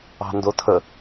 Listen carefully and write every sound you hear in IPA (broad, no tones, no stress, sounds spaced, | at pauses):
ɑ̤ n d o tʰ ə